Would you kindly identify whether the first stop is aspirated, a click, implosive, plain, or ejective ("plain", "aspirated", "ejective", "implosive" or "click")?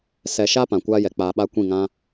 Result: plain